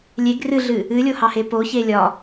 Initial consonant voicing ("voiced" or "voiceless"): voiced